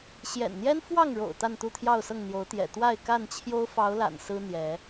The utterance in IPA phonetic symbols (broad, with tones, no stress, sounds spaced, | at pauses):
ɕ j ɛ̰˨˩ n n̪ j ɛ˦ n f w ɑ˥˨ ŋ ɻ o̰˨˩ ʊ̯ t̪ a˥˨ n t̪ u˥˨ t̪ʰ j ɑ˥˨ ʊ̯ s ɤ˥˨ ŋ n̪ j o˨˦ ʊ̯ t̪ j ɛ̰˨˩ t̪ w a˥˨ ɪ̯ k a˥˨ n t͡ɕʰ j o˦ ʊ̯ f ɑ˨˦ ʊ̯ l a̰˨˩ n s ɹ̩˦ n̪ j ɛ˨˦